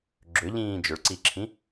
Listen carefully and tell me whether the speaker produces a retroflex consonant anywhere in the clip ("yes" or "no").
yes